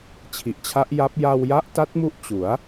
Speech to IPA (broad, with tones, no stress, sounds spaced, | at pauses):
t͡ɕʰ i˨˩ ʔ t͡ɕʰ a˦˥ ʔ j a˦˥ p̚ j a˧ w j a˦˥ ʔ t a˦˥ t̚ m u˦˥ ʔ t͡ɕ u˩˦ a̯